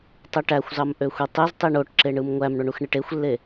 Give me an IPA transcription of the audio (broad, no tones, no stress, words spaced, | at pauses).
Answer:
tˤɯʈæxʷzɑm ʔøxʷitˤez tˤiɳoʈǁeɳɯm ŋʷæmɳoɳuxɳeʈ exʷlːe